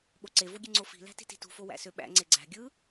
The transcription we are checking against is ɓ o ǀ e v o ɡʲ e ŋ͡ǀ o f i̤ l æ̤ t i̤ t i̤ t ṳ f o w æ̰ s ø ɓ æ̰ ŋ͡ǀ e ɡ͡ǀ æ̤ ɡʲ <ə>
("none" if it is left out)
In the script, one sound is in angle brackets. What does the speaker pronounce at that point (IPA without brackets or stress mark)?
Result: ɯ